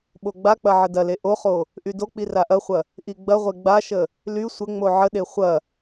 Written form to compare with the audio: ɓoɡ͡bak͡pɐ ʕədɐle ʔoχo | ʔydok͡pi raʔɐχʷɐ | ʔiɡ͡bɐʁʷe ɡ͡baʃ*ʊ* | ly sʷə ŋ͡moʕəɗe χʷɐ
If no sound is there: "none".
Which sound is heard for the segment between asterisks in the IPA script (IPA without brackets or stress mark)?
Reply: ə